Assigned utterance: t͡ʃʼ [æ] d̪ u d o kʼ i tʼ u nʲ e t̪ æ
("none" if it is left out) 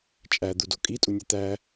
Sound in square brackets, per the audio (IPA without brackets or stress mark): æ